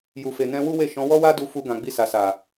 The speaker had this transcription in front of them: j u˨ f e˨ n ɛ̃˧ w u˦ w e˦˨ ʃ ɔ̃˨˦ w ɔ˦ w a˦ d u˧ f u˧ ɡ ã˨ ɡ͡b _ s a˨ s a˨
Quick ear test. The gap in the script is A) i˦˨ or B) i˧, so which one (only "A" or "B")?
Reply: B